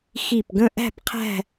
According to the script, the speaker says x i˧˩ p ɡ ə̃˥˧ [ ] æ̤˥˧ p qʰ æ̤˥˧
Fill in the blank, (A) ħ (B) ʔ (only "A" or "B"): B